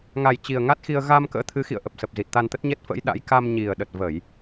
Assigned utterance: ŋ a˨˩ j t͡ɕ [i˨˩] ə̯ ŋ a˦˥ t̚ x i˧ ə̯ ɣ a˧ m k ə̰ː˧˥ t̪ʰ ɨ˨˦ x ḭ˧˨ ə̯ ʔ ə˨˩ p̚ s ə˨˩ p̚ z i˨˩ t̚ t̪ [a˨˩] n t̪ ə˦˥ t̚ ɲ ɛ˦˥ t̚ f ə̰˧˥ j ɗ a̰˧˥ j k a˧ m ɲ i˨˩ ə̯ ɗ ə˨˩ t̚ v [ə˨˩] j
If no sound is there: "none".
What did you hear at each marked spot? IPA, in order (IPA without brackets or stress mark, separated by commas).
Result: i˨˩, a˧, ə˧˩˨